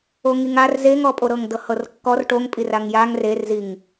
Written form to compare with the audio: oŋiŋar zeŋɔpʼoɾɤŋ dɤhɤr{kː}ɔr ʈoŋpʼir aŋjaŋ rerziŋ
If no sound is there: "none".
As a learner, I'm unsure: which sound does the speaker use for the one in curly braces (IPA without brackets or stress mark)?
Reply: kː